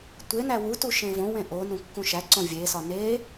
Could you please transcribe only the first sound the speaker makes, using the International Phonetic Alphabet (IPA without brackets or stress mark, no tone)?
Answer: tʷ